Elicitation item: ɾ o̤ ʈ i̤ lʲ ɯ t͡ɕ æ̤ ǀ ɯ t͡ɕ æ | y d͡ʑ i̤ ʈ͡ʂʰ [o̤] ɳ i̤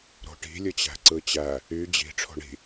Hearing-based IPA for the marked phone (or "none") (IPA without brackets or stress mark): o̤